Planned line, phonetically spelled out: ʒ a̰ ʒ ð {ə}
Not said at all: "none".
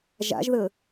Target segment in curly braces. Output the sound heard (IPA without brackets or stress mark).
ə